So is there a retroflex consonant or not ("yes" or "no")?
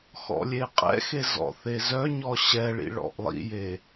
yes